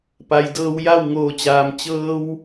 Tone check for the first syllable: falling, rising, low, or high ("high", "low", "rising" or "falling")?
low